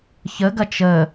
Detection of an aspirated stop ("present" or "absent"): absent